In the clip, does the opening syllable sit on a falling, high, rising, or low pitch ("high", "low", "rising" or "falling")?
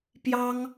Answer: high